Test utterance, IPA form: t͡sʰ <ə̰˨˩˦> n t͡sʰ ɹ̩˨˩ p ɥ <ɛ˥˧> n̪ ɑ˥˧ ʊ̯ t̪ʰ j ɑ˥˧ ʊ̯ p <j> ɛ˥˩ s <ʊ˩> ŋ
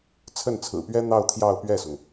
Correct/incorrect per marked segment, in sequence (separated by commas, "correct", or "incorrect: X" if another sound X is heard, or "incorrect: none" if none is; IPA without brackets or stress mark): incorrect: ə˥˩, incorrect: ɛ˥, incorrect: ɥ, correct